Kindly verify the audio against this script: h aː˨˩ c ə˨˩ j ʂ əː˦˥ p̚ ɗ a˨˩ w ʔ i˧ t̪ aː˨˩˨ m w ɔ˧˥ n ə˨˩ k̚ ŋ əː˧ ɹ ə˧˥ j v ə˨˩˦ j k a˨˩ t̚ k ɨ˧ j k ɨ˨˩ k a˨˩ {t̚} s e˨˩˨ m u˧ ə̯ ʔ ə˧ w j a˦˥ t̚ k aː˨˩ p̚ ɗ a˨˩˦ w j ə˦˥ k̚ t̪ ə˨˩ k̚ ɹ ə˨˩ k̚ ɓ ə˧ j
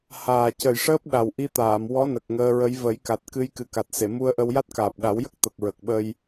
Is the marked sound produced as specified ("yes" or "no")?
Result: yes